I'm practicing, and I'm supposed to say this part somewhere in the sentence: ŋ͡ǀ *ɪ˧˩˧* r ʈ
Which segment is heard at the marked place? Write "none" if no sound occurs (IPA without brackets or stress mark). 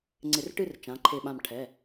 ɪ˧˩˧